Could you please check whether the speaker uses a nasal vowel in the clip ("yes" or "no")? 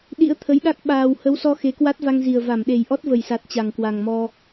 no